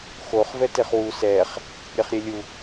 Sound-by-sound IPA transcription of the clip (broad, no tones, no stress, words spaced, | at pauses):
xoχ vɛteχwu sɛχ | ɾʲeχɾʲelʲu